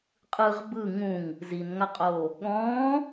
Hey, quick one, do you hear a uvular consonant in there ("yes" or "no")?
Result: yes